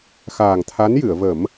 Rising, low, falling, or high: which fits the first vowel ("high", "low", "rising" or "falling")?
low